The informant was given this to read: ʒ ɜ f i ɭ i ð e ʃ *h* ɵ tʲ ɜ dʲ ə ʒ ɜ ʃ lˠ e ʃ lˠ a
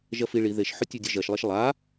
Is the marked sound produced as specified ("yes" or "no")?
no